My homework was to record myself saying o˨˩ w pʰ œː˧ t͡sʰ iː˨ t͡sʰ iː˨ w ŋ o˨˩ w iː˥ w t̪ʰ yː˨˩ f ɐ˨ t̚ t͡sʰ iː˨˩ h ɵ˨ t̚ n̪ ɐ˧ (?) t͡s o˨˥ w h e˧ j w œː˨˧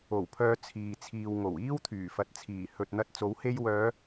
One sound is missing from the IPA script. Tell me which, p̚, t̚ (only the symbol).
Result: t̚